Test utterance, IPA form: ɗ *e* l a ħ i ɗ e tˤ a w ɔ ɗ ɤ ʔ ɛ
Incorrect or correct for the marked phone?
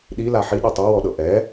incorrect: i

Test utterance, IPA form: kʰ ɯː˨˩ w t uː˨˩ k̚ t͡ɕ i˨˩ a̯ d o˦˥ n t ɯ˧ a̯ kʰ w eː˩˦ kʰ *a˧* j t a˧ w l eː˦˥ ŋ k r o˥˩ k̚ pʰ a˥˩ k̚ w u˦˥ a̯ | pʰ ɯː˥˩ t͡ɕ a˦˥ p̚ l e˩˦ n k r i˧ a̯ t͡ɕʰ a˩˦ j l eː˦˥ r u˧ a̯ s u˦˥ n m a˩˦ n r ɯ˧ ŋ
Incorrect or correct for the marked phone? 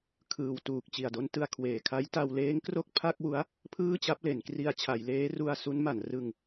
incorrect: a˦˥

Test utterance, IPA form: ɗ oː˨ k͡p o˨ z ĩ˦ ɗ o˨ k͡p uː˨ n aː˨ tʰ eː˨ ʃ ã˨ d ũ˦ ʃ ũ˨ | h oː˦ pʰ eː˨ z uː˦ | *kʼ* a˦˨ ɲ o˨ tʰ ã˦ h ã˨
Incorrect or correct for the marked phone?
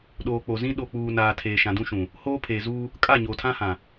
correct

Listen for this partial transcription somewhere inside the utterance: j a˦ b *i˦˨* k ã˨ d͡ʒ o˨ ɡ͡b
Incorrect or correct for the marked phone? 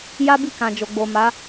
correct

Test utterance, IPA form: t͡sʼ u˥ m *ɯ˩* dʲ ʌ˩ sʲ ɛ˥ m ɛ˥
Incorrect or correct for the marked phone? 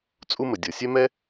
incorrect: ə˩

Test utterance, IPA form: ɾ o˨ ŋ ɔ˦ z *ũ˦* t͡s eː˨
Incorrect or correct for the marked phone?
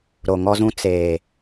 correct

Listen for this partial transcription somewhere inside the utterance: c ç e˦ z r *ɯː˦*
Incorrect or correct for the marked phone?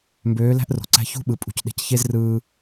correct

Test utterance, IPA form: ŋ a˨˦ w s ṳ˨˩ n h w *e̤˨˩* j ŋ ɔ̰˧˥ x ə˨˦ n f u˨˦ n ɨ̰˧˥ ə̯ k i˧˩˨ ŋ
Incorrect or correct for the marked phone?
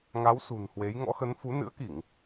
incorrect: e˨˦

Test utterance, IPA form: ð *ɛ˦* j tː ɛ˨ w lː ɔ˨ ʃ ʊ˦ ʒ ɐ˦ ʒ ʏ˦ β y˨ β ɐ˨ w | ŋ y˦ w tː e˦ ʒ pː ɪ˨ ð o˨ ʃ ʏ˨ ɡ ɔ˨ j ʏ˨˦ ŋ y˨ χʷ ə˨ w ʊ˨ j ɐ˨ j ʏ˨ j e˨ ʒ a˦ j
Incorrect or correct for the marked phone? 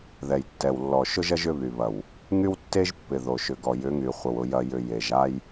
incorrect: ɛ˨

